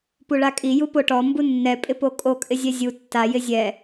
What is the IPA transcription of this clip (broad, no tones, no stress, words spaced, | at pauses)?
puɭakʼi jupoʈɔ mbunːɛ pʼɪpokʼo kʼɪzʲɛzʲu tːa jɪzʲɛ